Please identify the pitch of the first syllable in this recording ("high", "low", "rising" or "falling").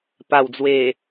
low